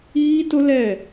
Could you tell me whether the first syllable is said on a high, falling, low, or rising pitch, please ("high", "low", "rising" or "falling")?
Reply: high